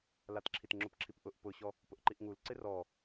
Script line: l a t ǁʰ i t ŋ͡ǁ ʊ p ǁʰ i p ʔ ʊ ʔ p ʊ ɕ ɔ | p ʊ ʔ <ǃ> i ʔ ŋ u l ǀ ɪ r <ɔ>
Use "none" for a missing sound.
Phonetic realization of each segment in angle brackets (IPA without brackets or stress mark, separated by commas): ǃ, ɔ